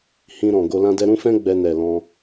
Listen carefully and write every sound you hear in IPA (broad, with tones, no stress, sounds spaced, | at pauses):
h ĩ˧ ɾ ɔ̃˨ ɡ o˧ l ã˦ d ɛ˦ ɾ ũ˦ f ɛ̃˦ ɡ͡b ɛ˧ n ɛ˨ l ɔ̃˧